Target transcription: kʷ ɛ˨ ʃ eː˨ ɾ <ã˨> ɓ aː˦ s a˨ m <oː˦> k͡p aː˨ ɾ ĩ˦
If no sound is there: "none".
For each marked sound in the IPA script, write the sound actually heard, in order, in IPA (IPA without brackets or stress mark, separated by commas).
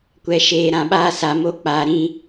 ã˨, o˦